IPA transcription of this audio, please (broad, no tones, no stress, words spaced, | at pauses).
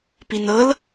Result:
pinɤl